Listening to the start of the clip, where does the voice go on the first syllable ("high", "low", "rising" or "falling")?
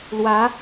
rising